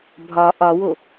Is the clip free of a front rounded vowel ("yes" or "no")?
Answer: yes